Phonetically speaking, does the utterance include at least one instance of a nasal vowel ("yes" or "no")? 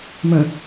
yes